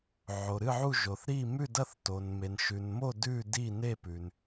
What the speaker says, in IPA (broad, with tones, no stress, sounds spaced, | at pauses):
ʕ o˨ ɾ ɨ˥˨ ʕ u˥˨ ʒ o˨ θ ɾ i˥˨ m ʉ˥˨ d ɐ˥˨ θ t o˨ n m e˨ n ʃ ʉ˨ n m o˥˨ d ʉ˥˨ d i˥˨ n e˥˨ p ʉ˨ n